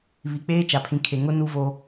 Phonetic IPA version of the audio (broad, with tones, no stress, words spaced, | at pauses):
βi˨k͡peː˦t͡ʃa˨ pʰĩ˨kʰe˨ŋʊ˦ nu˦vo˦